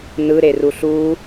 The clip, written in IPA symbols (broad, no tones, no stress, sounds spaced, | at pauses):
n ɯ ɾ e r u ɬ u